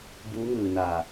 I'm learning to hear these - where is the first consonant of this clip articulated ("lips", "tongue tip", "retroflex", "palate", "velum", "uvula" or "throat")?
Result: lips